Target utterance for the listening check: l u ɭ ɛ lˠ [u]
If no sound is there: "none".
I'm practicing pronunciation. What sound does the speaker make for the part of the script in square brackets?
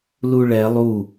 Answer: u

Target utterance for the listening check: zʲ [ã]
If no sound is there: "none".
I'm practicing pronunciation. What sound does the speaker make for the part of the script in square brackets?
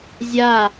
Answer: a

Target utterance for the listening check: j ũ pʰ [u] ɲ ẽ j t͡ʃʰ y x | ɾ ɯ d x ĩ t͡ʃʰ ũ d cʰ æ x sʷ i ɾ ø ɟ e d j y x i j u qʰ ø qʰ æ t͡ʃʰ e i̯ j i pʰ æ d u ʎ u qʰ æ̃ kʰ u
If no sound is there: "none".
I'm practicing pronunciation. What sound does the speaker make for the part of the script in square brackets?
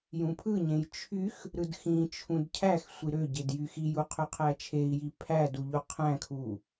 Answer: ɯ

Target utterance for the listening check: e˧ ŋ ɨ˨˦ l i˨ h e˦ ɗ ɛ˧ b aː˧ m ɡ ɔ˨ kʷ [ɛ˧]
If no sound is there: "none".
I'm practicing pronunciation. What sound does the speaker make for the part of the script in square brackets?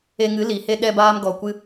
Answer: ɨ˧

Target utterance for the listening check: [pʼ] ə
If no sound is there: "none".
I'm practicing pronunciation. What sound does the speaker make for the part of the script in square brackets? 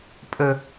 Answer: pʼ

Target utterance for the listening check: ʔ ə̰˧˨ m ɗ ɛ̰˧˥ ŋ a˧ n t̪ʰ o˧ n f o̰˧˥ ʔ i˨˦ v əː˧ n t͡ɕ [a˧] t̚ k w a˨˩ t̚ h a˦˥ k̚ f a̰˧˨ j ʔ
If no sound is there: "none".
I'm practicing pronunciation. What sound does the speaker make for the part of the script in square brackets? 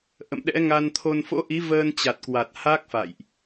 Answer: a˨˩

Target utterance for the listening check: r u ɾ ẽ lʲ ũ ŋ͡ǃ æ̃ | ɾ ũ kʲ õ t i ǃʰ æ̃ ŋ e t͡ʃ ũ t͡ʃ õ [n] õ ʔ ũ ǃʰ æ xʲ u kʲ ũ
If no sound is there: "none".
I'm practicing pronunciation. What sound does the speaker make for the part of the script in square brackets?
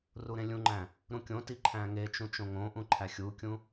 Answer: ŋ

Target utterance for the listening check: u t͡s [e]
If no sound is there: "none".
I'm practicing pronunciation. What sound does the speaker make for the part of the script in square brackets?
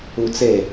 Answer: e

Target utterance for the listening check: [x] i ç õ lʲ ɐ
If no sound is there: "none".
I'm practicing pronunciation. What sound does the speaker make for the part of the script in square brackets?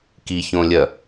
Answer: k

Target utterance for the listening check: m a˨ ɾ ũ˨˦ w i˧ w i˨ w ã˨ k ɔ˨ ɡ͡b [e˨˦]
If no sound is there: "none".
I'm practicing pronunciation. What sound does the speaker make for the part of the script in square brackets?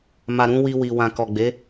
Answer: e˨˦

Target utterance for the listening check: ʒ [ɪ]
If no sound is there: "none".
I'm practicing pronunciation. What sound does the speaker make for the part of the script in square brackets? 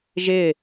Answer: ɪ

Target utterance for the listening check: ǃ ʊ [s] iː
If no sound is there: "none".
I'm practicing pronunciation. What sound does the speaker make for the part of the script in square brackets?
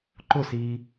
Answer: s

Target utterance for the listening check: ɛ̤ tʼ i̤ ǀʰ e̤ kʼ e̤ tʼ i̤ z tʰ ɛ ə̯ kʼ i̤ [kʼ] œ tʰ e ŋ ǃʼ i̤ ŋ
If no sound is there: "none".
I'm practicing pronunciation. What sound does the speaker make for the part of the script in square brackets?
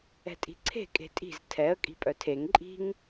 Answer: pʼ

